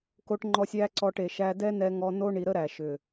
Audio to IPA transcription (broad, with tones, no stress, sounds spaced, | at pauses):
k o˧ ʈ ŋ͡ǃ ɔ˧ sʲ æ˦ ǀ ɔ˧ ʈ e˨ ʃ æ˧ d ɛ˦ n ɛ˧ ŋ ɔ˧ n o˦ ɳ i˧ ɾ ə˦ ɾ æ˨ ʃ ʏ˨